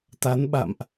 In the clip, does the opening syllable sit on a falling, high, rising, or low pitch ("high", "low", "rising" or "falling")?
rising